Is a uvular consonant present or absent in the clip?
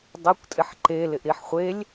present